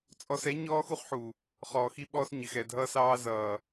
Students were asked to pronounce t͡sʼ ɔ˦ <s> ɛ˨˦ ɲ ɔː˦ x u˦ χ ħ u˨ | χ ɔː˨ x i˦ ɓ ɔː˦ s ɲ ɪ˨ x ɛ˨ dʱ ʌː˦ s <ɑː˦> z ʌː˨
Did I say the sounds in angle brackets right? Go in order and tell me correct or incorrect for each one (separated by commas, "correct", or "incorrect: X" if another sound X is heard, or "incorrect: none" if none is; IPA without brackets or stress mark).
correct, correct